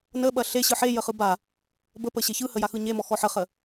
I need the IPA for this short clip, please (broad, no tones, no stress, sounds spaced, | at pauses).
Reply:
n ə ɓ ɐ ɬ e ɕ ɯ ħ e j ə χ ɯ b a | b ə p ə ɕ e ç ɯ h ə j a x ɯ ɲ e m ɔ x ɔ ħ ə χ ə